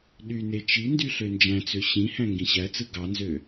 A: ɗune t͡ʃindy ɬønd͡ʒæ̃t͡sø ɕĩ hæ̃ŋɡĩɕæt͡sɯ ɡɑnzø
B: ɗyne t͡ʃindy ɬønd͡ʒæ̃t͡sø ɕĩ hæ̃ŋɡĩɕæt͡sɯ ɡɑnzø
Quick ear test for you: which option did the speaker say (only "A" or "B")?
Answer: B